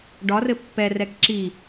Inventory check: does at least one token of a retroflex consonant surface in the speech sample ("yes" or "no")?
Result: yes